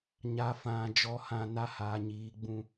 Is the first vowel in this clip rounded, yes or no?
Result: no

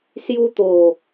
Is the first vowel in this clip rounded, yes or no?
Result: yes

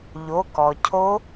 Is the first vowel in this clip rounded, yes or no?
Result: yes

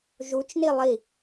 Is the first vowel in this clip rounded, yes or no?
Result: yes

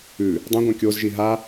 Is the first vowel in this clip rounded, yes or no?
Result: yes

